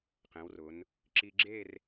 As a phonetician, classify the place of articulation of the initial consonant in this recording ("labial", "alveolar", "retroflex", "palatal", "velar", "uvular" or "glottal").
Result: uvular